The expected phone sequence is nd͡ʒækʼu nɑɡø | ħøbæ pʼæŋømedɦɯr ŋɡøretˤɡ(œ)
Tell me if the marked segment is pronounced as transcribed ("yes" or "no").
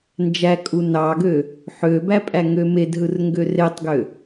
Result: no